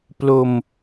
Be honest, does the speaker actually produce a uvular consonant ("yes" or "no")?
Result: no